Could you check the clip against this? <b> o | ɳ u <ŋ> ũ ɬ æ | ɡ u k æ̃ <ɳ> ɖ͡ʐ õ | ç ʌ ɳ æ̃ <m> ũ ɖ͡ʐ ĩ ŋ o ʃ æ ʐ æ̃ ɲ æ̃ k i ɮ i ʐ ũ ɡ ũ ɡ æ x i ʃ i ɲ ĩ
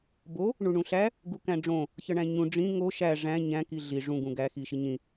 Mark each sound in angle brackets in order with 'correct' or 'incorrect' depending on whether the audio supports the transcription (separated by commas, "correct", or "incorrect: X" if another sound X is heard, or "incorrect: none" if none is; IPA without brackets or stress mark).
correct, incorrect: ɳ, incorrect: none, incorrect: ɲ